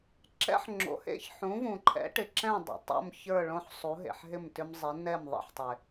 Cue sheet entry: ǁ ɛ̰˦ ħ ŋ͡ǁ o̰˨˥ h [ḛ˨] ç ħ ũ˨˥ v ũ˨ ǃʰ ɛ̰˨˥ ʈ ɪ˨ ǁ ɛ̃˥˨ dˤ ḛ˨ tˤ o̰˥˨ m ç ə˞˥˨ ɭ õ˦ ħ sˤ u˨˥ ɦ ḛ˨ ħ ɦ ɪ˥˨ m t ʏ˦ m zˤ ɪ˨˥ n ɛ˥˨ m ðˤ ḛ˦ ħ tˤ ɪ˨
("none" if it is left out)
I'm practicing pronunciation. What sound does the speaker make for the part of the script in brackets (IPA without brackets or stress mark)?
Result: ḛ˥˨